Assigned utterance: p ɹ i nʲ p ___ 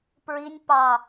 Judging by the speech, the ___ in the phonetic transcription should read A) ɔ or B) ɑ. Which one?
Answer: B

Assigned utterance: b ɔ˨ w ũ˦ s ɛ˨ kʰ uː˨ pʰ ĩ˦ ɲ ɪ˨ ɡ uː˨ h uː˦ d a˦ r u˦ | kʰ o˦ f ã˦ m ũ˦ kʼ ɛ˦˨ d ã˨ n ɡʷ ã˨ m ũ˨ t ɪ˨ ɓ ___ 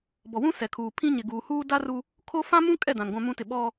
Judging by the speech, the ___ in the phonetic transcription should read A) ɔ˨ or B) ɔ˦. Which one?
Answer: B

